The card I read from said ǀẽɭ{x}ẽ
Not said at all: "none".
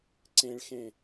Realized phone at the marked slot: x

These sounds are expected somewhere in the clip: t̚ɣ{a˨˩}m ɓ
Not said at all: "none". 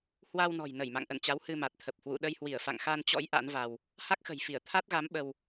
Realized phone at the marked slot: a˨˦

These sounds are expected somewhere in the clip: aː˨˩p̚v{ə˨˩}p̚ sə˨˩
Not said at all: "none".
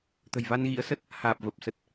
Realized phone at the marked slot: ə˨˩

